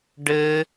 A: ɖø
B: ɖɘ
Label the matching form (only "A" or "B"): B